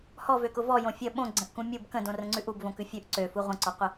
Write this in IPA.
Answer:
h ɔ v ø k ʊ v ɔ j õ fʲ ə ɓ õ ɡ͡ǀ ə̃ ʔ k ũ mʲ u b k ə̃ d õ r ə̃ ŋ͡ǀ ʉ ʔ u b v õ k ʉ fʲ ʉ ʔ ǀ ø f u ʁʷ ə̃ ǀ ɔ qʷ ə

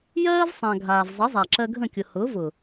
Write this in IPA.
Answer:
j ɜː˦ v sˤ ã˨ ɡʱ aː˨ v zˤ ə˨˦ zˤ a˨ ǁ ɜ˧ ɡʱ ə̃˦˨ kʲ ʊ˨ h ʊː˨˦ v ʊ˨

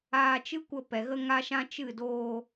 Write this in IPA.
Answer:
aː˧ t͡ʃ ɨ˦ kʷ ə˧ p ɛ˨ ɣ ə˦ ŋ a˦ ʃ ã˦ t͡ʃ ɨ˦˨ d oː˧

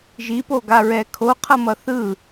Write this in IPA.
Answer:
ʒ i p o ɡ a ɹ ɛ kʰ o qʰ ʌ m ʌ θ ɯ

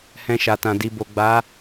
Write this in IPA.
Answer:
h ɛ̃˧ ʃ a˨ t ã˨ d i˨ b o˨ ɡ͡b a˨˦

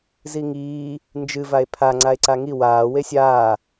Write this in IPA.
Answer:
z i ŋ iː | n d͡ʒ ɨ v a e̯ pʰ a ŋ͡ǀ a e̯ ǀ a ŋ i w aː w e sʲ aː

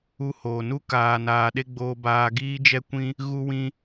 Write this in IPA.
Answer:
u˧ h oː˨ n u˧ k aː˨ n aː˨ ɗ e˦ ɡ͡b oː˧ b aː˧ ɡ iː˧ d͡ʒ ɛ˧ kʷ ĩ˧ | ɣ u˧ w ĩ˧

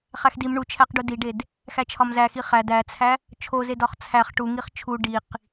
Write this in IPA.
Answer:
χ æ x d i m ɳ u t͡ʃʰ æ q ɖ u d i ɖ e d | x æ t͡ʃʰ ɒ m z æ x i χ æ d æ t͡sʰ æ | t͡ʃʰ o z e d ɒ χ t͡sʰ æ χ ʈ u ŋ i χ t͡ʃʰ u ɖ i q

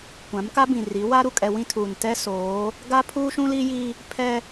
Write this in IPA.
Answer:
kʷ ã˨˦ m k a˦ b ĩ˨ r i˨˦ w a˦ ɾ u˨ kʼ ɛ˨ w ĩ˦ tʰ uː˨ n t ɛ˦ s oː˨˦ | ɡ a˦ pʰ uː˦ ʃ ũ˦ l i˦ j i˦ | pʰ ɛ˦

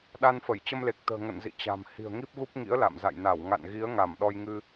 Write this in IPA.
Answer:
ɗ a˧ n f ə˧˩ j t͡ɕ ə˧ m l e˨˩ k̚ t̪ ə̤ː˨˩ ŋ ə̰˧˨ n z ḭ˧˨ t͡ɕ a̤˨˩ m h i̤˨˩ ə̯ ŋ i˦˥ p̚ ɣ u˦˥ p̚ ŋ ḭ˧˥ ə̯ l a̰˧˨ m z a̰˧˨ j n a˧˩ w ŋ a̰˧˨ n ɣ i˨˦ ə̯ ŋ a˧˩ m ɗ ɔ˧ j ŋ ɨ˧

